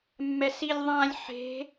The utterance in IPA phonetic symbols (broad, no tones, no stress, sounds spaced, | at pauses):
mː ɛ s i lʲ ðˤ ã lʲ ħ e̤